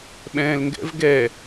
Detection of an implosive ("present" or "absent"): present